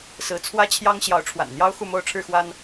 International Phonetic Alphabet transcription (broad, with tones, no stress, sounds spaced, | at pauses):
s ɹ̩˨˦ t͡sʰ w ä˦ t͡ɕʰ j ɑ˦ ŋ ɕ j ɑ˨˦ ʊ̯ ʈ͡ʂʰ w a̰˨˩ n n̪ j ɑ˦ ʊ̯ x u˥˨ m o˦ ʊ̯ ʈ͡ʂʰ ɻ̩˥˨ x w a˦ n